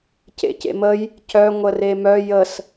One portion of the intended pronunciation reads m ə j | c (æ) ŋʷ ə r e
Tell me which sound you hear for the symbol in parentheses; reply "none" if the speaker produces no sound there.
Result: œ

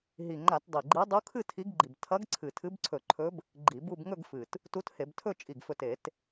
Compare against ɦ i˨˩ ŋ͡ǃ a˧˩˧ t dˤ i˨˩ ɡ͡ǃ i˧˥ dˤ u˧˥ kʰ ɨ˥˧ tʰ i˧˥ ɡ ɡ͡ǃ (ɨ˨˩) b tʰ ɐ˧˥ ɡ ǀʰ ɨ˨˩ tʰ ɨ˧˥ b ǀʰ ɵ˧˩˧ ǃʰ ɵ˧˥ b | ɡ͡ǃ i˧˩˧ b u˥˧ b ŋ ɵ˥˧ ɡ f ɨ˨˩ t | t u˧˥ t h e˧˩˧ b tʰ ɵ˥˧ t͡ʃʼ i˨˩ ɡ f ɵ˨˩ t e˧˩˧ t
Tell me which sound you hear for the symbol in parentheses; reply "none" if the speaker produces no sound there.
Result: i˨˩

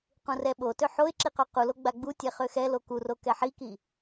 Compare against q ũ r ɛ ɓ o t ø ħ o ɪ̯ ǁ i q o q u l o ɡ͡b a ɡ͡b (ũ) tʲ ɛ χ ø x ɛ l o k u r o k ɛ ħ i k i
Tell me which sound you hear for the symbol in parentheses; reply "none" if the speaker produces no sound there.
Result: u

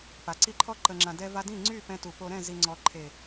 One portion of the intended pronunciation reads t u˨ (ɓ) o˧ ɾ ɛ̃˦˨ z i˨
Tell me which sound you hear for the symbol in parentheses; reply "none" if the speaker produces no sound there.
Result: p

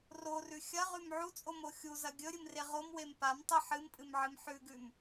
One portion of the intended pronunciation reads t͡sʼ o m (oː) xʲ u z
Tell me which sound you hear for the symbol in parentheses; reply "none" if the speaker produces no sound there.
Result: o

